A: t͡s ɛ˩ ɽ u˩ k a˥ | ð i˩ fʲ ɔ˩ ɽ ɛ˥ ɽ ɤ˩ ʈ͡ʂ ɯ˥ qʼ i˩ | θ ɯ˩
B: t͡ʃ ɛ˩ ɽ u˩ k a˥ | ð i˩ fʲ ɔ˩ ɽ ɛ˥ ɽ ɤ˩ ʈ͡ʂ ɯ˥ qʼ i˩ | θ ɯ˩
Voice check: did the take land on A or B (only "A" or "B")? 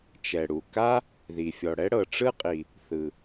B